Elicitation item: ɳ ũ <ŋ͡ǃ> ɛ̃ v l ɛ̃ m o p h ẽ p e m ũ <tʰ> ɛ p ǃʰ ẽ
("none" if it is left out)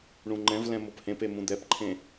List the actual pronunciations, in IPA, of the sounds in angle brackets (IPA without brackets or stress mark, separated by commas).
ŋ͡ǃ, d̪